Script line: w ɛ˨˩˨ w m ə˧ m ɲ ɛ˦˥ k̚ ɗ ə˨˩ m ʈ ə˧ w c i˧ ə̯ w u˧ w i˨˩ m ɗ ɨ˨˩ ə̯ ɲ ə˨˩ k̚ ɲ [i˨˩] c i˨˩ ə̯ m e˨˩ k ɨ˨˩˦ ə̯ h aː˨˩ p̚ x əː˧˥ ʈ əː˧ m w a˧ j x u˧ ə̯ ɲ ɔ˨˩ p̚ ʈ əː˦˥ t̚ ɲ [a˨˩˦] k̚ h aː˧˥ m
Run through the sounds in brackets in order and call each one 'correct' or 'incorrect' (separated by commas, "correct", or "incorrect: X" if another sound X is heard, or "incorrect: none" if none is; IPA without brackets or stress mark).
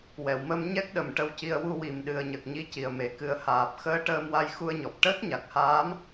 incorrect: i˧, incorrect: a˨˩